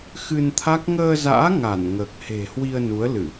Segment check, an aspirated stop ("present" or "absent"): present